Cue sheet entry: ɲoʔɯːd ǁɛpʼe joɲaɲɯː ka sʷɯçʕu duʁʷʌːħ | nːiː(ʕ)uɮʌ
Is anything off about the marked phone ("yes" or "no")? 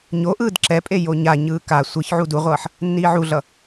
no